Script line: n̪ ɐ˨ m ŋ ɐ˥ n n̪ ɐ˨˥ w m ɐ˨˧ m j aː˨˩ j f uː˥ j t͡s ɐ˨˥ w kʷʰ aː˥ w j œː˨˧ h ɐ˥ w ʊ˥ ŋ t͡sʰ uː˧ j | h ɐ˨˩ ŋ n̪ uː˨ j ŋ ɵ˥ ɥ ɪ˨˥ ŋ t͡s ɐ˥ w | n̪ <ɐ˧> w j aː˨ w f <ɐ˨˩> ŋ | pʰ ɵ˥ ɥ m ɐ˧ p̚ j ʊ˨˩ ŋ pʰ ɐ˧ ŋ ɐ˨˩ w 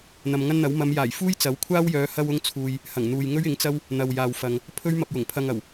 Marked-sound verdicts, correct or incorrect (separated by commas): incorrect, incorrect